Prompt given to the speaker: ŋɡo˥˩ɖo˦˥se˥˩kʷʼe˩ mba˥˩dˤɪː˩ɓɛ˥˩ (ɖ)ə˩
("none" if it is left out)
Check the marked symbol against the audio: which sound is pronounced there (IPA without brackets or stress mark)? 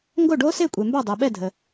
dʱ